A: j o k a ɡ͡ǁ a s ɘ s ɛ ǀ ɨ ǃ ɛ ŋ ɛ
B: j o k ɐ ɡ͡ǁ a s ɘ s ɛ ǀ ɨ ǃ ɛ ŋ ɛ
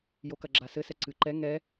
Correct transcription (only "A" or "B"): B